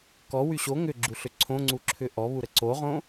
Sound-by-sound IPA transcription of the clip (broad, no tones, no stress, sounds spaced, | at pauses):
k ɔ w y ɕ o ŋ ʏ ɡ͡ǁ u ɬ ʏ ǀʰ õ ŋ͡ǀ u ǁʰ ʏ ʔ ɔ β u ɾ ə ǀ o ʁ õ